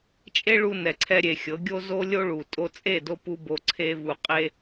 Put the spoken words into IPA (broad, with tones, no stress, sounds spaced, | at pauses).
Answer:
t͡ʃʼ e˦ ɭ u˧ n ɛ˨ ǀʰ ɛ˧ ɾʲ e˨ xʲ ɤ˨˦ ɡʲ o˦ z o˦ lʲ o˦ ɭ u˨ tʼ o˦ t͡sʼ e˦˨ d o˧ p u˦ b o˧ ǀʰ e˦ v u˧ qʼ e˦